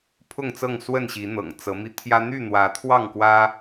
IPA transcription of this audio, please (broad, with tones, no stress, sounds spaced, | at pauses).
pʰ ʊ˥˨ ŋ t͡s ɤ˥˨ ŋ s w ə˥˨ n ɕ i˨˦ n̪ ɤ̰˨˩ ŋ t͡s ɤ˨˦ m i˧ t̪ʰ j ä˦ n̪ y˥˨ n̪ w ä˨˦ t̪ʰ w ɑ˥˨ ŋ k w ä˦